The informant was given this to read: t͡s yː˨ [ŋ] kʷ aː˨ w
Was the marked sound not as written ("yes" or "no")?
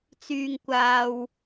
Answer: no